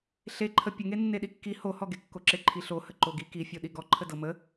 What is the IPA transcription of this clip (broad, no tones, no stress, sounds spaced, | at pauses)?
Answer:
ɬ e ǃʰ ə pʲ ə ŋ e nː e ɗ i kː i h o h ɔ ɡ e kː o ǁ e ǃʰ i ɬ o h ə ǃ o ɡ i k i fʲ o ɗ i ɡ ɔ ǃʰ ə d ɤ m ə